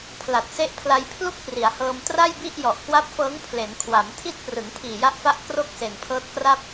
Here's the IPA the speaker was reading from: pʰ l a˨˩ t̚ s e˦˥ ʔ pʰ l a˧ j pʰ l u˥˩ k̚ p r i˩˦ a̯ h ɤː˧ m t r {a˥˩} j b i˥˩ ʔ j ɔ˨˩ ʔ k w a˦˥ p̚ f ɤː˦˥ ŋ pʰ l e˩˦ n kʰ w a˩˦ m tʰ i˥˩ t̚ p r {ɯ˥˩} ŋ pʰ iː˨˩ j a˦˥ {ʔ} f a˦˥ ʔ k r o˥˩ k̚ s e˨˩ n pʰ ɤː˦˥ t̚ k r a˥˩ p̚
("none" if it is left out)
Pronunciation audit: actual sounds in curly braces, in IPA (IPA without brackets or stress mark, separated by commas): a˥˩, ɯ˩˦, ʔ